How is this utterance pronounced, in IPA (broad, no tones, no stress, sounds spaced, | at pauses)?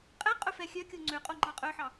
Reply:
qʼ ɛ qʼ ɵ f ɛ xʲ œ kʲ o ŋ͡ǀ ø qʼ o ŋ͡ǃ ɑ qʼ œ ħ ɑ